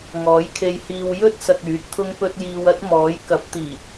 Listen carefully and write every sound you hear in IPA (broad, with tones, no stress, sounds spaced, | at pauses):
ŋ ɔː˨˥ j kʰ e˧ j h iː˧ w j ɵ˥ t̚ s ɐ˨ k̚ yː˨˥ t̚ t̪ʰ ʊ˥ ŋ p ɵ˥ t̚ j iː˧ w ɐ˥ t̚ m ɔː˨˥ j k ɐ˨˥ p̚ t̪ iː˨˩